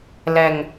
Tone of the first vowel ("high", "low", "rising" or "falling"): high